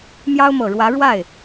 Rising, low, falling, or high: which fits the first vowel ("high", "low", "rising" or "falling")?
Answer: high